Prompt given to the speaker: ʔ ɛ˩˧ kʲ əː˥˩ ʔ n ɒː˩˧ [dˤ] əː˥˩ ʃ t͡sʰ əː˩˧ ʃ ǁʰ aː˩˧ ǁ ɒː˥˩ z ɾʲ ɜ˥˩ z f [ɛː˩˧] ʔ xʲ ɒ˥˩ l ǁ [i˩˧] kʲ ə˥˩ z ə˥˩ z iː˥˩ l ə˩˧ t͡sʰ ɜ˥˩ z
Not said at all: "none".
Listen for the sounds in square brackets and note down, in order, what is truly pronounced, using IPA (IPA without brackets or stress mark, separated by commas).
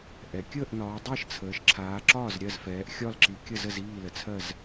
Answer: dˤ, ɛː˩˧, i˩˧